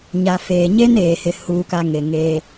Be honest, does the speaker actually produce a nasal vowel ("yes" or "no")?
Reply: no